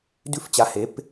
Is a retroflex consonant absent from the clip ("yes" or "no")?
yes